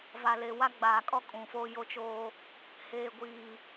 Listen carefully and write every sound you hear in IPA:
v a˨ l e˨ w a˦ ɡ͡b aː˨ kʼ ɔ˦ kʼ ũ˨ f o˦ j o˦ t͡ʃ oː˦ | h eː˨ ɡʷ iː˨

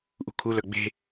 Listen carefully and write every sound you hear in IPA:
ʔ ṳ kʰ u l œ ɡ͡b e̤

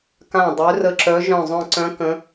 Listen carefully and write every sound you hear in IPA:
k ã˧˩ dˤ ø˨˦ r ə˧˩ ǁ œ˨˦ ʒ œ̃˧˩ zˤ œ̃˧˩ ǀ œ̃˨˦ k ə̃˨˦

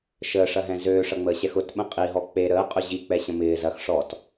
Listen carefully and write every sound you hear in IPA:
ʃ əː ʂ ɐ ɦ ɛ̃ z øː ʂ ɐ ŋ͡m əː ɕ ɛ x ʊ t ɓ ə̃ qʼ i ɦ ɔ k͡p e ɾ əː qʼ ʊ ʑ i k͡p ɛ ɕ ə̃ m ɪː z ɐ x ʂ ɔ t

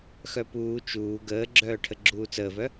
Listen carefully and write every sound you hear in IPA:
x œ p uː t͡ʃ uː ɡ əː ɡ͡ǁ œː ʈʰ ə ɡ͡ǁ uː t͡s əː v œ

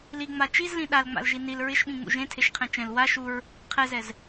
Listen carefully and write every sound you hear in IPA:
l i ŋ͡m a t͡ʃ i z l ĩ ɗ a l ŋ͡m a̰ l ʒ i n i l ɹ ɪ ʃ ɓ ĩ ŋ͡m ṵ ʒ ẽ tʰ e ʃ qʰ ɛ̃ t͡ʃ ɛ̃ l w a ʃ u ɹ | qʰ ɛ z ɛ z

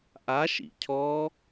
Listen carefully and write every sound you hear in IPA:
ʔ a ʃ ḭ cʰ ɔ

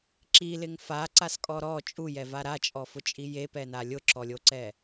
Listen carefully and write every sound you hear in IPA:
ǁ i l ɪ ŋ f a ǀ a s kʼ ɔ ɾ ɔ t͡ʃʼ u j ɛ v a ɾ a t͡ʃʼ ɔ f ʊ t͡ʃʼ i j e p ɛ n a lʲ ʊ ǁ ɔ lʲ o ǀ ɛ

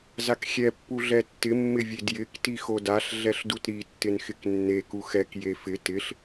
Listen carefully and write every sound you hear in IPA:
z a k xʲ ɛ pː u ɮ ɛ tː ɪ mː ɪ vʲ e d j ɪ k t i x o d a ɬ ɮ ɛ ɬ d u t ɾ i tː ɪ n x ɪ k nː e k u x ɛ k j e f ɪ t ɪ ɬ

